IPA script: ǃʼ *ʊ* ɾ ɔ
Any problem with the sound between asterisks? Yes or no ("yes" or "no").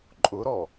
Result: no